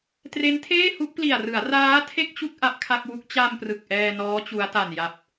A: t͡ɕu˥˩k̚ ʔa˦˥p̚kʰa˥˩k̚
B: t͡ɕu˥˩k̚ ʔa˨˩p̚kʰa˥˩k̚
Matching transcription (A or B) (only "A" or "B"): A